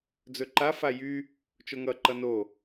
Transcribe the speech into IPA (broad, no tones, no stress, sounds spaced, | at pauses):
d͡z ɵ ǃ a f a j y | t͡ʃ o ŋ ʌ ǃ ʌ n o